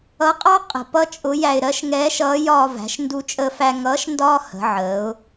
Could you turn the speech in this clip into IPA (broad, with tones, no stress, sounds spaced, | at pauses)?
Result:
ʌ˧˥ qʼ ɑ˥ qʼ ə̤˧ p ʌ˥ t͡ʃʼ ʊ˧˥ j æ˧ ɪ̯ ɾ ɜ˧˥ ʃ ŋ ɛː˧˥ ʃ ʌː˧˥ j ɒː˧ v æ̤˩˧ ʃ n d u˧ t͡ʃʼ əː˧ f æ˧ ŋ ʌː˧˥ ʃ n d ɒː˥ h ə̤˩˧ ʕ əː˩˧ ʊ̯